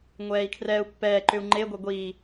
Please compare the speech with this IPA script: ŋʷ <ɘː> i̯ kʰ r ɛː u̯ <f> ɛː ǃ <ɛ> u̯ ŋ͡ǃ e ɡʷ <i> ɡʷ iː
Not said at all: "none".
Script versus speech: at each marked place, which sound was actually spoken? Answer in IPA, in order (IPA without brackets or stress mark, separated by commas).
ɛː, pː, ʏ, e